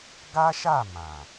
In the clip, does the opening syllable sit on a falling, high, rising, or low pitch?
high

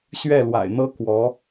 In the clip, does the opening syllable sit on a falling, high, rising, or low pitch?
falling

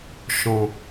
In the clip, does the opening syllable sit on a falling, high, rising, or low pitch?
low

